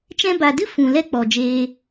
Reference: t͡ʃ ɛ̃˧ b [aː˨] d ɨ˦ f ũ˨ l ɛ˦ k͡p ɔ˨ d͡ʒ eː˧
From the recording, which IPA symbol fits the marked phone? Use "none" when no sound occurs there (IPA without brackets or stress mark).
a˨